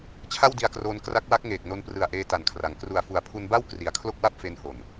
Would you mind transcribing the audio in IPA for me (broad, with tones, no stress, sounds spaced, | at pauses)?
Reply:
t͡ɕʰ a˥˩ w d i˧ a̯ k r oː˧ n k r a˦˥ k̚ w a˦˥ k̚ ŋ eː˨˩ k̚ n o˧ n p r ɯ˨˩ a̯ ʔ eː˧ t a˨˩ n kʰ r a˩˦ ŋ k r u˨˩ a̯ f u˨˩ a̯ pʰ u˧ n b a˥˩ w k r i˨˩ a̯ kʰ l o˥˩ k̚ w a˥˩ p̚ f e˧ n h o˨˩ n